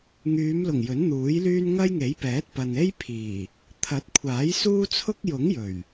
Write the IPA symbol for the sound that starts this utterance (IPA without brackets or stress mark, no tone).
ŋ